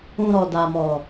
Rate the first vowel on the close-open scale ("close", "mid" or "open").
close